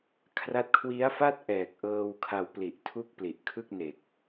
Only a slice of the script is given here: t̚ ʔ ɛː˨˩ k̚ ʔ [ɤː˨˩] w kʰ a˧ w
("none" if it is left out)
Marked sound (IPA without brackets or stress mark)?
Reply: ɤː˧